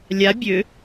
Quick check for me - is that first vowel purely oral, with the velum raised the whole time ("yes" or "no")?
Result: yes